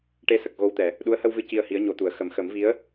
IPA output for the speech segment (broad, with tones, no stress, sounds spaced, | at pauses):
ʈ e˧ s ə˨˩ k̚ ɣ o˧ w t̪ ɛ˨˩˨ | ɗ u˧˥ ə̯ h ə˧ w v ɨ˧˥ c i˧ ə̯ h i˧˥ ə̯ ɲ o˨˩˦ t̪ u˨˩˨ ə̯ x ə˨˩˨ m x ə˨˩˦ m v i˧˥ ə̯